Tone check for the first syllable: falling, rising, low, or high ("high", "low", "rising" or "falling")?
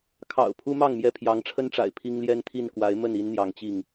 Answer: low